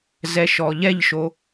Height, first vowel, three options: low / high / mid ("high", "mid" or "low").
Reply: mid